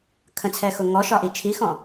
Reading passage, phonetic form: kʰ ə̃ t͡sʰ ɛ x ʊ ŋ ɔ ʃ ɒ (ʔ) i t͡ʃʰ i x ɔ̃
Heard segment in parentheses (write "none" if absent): ʔ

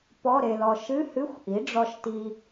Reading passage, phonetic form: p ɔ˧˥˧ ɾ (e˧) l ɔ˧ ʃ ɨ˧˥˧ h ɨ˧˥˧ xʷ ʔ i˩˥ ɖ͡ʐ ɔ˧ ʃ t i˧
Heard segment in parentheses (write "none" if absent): e˧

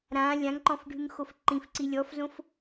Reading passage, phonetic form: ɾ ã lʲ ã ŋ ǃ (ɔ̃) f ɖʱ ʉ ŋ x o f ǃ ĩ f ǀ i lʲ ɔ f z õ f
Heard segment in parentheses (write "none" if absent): ɔ̃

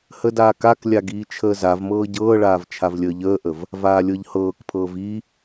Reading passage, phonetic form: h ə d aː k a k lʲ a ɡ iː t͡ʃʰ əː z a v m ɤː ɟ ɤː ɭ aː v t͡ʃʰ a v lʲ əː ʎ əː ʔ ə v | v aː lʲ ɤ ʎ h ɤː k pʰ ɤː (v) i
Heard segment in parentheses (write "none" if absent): v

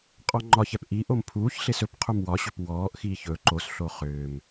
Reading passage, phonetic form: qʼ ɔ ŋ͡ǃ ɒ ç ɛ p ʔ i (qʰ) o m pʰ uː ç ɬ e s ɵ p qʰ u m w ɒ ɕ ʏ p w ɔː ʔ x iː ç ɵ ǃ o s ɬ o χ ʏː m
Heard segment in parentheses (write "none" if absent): ʔ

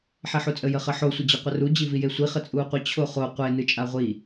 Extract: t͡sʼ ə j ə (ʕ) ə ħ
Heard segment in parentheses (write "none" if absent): χ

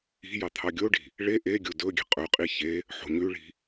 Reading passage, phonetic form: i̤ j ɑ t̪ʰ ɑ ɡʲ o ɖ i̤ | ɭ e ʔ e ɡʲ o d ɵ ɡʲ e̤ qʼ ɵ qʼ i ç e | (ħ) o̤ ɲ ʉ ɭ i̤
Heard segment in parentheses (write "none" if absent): ħ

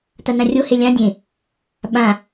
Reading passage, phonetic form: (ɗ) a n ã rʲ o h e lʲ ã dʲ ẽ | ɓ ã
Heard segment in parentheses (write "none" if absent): t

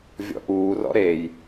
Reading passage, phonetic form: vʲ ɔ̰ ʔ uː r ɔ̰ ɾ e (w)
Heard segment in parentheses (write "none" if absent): j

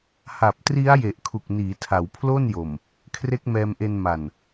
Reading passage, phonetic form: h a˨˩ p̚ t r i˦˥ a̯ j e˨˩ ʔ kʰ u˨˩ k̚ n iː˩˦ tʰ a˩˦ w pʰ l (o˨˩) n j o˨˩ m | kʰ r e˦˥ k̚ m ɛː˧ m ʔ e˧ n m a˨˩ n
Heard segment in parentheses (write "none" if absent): o˥˩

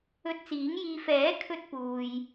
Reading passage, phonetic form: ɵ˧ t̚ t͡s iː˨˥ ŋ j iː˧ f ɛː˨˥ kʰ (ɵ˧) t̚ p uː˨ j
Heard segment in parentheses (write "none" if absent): ɵ˧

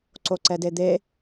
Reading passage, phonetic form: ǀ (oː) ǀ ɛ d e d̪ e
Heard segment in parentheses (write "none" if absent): o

